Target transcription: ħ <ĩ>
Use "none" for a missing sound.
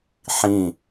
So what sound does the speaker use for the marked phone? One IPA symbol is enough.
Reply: ĩ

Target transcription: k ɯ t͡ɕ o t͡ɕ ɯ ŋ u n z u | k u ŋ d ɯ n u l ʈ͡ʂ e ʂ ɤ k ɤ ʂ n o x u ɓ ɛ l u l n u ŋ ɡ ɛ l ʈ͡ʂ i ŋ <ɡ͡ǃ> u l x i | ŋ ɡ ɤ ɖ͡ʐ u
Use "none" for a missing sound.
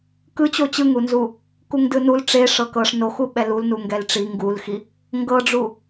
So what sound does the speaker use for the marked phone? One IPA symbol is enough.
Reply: ɡ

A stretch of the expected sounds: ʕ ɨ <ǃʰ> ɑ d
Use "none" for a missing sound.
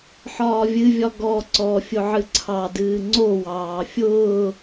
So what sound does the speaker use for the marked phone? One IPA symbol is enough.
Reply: ǀʰ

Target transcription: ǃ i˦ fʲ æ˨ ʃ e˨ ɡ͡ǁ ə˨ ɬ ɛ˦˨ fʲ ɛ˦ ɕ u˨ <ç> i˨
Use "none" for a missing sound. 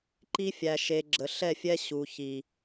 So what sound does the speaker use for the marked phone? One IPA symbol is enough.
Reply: ç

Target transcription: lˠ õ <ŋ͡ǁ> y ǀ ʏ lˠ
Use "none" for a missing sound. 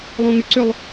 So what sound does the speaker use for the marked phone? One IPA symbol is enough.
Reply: ŋ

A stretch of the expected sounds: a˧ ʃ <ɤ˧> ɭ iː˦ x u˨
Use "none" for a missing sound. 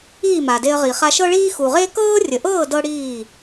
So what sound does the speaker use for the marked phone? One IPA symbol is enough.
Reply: ɤ˦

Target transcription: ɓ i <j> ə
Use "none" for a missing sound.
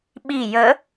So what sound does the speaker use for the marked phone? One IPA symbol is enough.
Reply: j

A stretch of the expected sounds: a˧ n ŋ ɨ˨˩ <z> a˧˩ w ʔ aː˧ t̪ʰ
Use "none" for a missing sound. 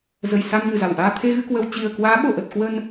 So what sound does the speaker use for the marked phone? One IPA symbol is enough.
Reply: z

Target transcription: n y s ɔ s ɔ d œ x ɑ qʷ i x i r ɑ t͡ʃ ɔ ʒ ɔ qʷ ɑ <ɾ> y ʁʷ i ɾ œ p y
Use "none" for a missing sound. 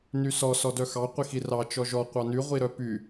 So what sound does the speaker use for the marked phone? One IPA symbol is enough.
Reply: n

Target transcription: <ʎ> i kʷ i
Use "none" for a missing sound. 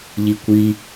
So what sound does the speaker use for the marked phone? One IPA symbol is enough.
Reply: ʎ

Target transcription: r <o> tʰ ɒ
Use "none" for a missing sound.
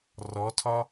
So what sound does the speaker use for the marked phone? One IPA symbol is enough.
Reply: ɔ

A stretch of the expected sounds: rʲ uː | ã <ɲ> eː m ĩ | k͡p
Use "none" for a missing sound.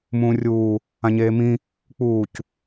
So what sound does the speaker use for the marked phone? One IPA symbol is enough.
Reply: ɲ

